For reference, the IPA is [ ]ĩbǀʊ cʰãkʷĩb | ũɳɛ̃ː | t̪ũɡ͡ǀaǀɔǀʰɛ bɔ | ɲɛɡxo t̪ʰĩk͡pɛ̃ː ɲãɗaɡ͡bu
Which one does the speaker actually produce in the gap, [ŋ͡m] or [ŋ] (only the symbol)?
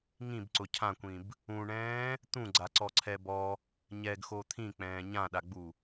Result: ŋ